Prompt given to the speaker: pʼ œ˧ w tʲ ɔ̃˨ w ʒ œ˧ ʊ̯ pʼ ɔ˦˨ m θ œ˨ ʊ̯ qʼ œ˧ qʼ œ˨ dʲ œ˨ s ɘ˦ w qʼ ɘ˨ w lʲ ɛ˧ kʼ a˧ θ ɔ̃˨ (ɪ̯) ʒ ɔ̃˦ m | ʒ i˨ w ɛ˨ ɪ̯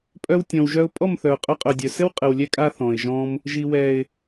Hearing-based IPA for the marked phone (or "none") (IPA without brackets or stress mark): ɪ̯